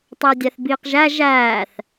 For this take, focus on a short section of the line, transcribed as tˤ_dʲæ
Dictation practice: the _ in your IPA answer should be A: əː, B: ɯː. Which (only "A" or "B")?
A